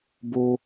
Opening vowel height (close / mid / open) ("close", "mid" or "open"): mid